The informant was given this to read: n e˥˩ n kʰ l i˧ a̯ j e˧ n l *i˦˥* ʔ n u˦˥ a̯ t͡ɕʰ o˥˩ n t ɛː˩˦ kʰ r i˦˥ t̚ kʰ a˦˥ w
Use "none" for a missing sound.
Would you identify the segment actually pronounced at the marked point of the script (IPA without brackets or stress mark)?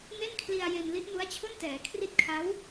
i˦˥